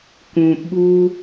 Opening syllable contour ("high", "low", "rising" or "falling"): low